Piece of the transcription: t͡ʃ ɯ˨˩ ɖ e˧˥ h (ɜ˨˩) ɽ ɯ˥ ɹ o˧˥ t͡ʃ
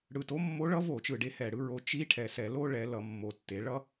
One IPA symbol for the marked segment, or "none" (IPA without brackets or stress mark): ɛ˨˩